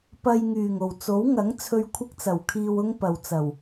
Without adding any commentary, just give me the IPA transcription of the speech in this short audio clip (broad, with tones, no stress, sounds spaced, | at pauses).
p ɐ˧ j ŋ yː˨˩ ŋ o˨˩ w t͡s o˨˥ w ŋ ɐ˨˥ ŋ t͡sʰ ɵ˧ ɥ kʷʰ ɪ˥ k̚ t͡s ɐ˨˩ w kʰ iː˧ w ʊ˥ ŋ p ɐ˨ w t͡s ɐ˨˩ w